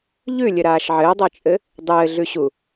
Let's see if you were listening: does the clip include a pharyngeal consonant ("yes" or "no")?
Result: yes